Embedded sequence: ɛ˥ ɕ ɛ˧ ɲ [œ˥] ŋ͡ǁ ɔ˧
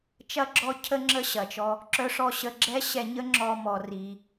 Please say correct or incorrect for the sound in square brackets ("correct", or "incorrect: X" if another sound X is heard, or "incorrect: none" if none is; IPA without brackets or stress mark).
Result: incorrect: ə˥